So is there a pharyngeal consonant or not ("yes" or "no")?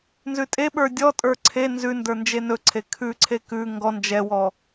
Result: no